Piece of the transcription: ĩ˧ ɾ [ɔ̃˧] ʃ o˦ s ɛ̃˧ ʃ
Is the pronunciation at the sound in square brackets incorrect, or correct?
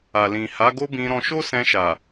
correct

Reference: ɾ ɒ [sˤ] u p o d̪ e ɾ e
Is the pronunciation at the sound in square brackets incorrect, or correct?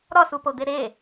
incorrect: s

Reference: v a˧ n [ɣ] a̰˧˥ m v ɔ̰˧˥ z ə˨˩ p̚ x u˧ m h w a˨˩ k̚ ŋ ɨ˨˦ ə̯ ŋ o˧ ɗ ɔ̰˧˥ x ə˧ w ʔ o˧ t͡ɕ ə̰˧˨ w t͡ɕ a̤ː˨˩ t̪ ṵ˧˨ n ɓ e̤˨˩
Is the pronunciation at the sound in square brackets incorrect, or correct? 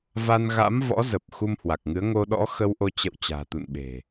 correct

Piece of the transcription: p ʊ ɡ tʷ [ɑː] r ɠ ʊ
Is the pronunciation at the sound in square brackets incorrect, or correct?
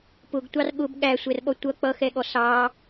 incorrect: ɑ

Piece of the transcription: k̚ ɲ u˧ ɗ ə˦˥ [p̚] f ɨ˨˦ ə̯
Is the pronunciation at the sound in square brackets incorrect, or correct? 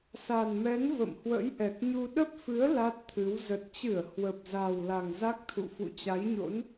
correct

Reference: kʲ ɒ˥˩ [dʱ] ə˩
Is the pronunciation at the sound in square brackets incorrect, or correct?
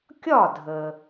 correct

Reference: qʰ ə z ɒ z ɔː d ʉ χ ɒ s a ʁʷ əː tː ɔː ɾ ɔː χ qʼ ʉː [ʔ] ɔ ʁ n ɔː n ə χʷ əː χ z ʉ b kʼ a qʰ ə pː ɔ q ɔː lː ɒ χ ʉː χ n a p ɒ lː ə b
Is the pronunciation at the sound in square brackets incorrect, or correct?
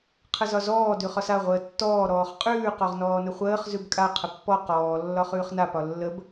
incorrect: q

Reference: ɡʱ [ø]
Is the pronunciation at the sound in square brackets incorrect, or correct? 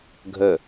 incorrect: ə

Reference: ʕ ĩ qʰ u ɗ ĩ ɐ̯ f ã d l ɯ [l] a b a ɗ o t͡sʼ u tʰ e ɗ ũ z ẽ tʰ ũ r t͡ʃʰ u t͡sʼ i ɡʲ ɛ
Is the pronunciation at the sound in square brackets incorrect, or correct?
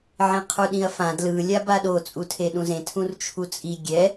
incorrect: lʲ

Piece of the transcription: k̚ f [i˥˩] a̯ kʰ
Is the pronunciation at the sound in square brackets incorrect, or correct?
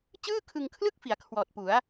incorrect: i˩˦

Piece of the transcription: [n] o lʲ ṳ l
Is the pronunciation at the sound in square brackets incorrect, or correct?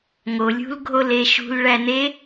incorrect: ŋ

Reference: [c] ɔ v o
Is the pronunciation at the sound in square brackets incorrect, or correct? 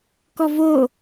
incorrect: k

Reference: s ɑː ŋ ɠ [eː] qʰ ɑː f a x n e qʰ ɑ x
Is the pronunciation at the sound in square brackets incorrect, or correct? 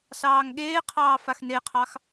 correct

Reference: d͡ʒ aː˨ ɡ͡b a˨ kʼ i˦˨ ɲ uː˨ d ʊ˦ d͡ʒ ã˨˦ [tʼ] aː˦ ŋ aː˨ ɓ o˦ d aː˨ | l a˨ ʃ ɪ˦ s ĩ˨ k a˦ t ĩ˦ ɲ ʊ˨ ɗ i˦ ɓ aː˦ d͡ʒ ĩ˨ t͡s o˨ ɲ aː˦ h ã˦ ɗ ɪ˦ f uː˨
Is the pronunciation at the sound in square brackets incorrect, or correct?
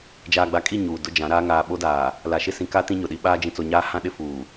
incorrect: ɾ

